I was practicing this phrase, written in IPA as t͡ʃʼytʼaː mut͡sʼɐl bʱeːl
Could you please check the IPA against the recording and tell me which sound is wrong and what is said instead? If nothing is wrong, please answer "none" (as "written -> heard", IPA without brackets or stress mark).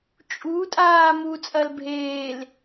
y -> u